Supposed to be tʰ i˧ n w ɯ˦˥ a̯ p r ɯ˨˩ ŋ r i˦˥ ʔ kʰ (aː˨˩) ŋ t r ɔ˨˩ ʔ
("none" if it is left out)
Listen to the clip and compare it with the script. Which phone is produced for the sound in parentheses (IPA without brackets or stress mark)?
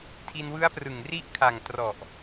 a˨˩